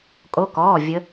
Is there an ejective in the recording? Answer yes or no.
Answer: yes